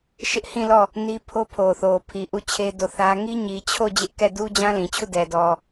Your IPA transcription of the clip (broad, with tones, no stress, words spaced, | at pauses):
ʃɪ˦ʔ hĩ˦˨lɔ˦˨ | ni˦ pʰo˦pʰo˨θo˨pʰi˨ ʔu˦˨t͡ɕʰe˦do˦˨θä˦ ŋi˦ɲi˨t͡ɕʰo˦˨ d͡ʑɪ˦ʔkɛ˦˨ du˦ d͡ʑã˦lĩ˨t͡ɕʰu˦˨dɛ˨ dɔ˨